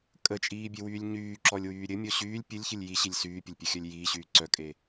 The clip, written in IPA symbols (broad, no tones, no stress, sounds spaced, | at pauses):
kʼ ə t͡ʃʼ iː bʲ e w yː lʲ ɲ yː ǁ ɔ lʲ w yː ɾʲ ɘ mʲ ɔ ɕ yː lʲ pʲ ɘ lʲ ç ɘ lʲ j i ɕ i lʲ s yː pʲ ə lʲ pʲ ɘ xʲ œ lʲ j iː ɕ yː ǀ œ kʼ e